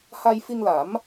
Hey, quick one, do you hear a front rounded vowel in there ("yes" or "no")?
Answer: no